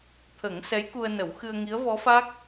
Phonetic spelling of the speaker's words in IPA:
t̪ʰə˨˩˦ŋ sɛ˧˥jku˧ə̯nə˨˩˦w xɨ˧ə̯ŋi˧˥ə̯vɔ˧˥fa˦˥k̚

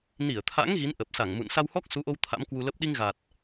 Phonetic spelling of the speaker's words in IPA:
ni˧˩ə̯t̪ʰa̰˧˥ŋ ɣi˨˦nʔə˨˩p̚sa˧˩ŋmṵ˧˨n sa˧whɔ˦˥k̚su˨˦ʔo˧w t̪ʰa̰˧˥mkwu˧lə˦˥p̚ ɗi˧ŋɣa˨˩t̚

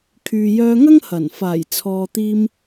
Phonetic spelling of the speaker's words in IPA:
kʰyː˨ jœː˧ŋɐ˥ŋ hɐ˨˩n faː˨˩jt͡sʰɔː˨t̪iː˧m

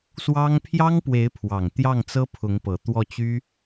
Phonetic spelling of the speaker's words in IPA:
swɑ˥ŋ pʰjɑ˥ŋpwe˧˥ɪ̯pʰwɑ˨˩ŋ t̪jɑ˥˩ŋt͡sɤ˥pʰʊ˧˥ŋpɤ˨˩ t̪wɔ˥˩t͡ɕy˥

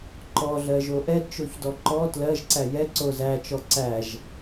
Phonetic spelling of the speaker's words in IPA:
ǃɔɮɜʒo ʔɛdt͡ʃoçdɔ ǃɔ tlɜʒǀæ jɛǀo zæt͡ʃɔ ǀæʒ

